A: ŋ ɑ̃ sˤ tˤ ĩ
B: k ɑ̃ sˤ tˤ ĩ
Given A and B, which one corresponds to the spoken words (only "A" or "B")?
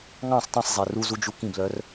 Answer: A